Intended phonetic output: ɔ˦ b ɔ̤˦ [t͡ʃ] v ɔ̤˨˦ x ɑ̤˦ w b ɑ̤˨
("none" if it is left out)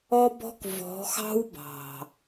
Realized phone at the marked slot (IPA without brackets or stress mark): k